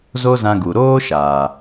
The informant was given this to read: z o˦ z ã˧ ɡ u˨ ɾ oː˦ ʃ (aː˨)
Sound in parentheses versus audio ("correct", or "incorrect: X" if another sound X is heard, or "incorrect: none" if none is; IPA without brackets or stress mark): correct